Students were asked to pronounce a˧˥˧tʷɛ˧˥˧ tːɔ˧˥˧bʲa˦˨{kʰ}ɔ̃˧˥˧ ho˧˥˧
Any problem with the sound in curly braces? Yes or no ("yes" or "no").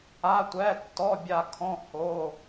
no